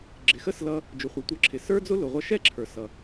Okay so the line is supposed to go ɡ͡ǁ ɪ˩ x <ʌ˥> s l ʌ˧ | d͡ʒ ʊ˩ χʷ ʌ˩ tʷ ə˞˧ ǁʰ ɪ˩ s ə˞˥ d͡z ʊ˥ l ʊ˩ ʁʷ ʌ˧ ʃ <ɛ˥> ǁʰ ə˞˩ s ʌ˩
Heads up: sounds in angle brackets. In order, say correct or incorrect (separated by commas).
incorrect, correct